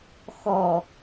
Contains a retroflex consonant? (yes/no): no